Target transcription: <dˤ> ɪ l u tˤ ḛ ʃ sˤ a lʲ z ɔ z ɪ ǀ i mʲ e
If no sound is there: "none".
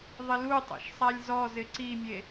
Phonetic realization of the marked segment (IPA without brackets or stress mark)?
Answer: ðˤ